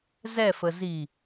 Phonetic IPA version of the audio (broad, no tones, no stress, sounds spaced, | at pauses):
z ɛ f ə z i